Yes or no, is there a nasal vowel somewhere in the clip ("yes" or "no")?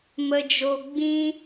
yes